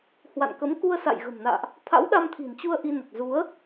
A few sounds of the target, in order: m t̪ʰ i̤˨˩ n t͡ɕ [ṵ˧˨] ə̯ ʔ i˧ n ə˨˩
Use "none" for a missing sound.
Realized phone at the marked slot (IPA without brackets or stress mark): u˧